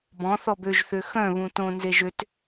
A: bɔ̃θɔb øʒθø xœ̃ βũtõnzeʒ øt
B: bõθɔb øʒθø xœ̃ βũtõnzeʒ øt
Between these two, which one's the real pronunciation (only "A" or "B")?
A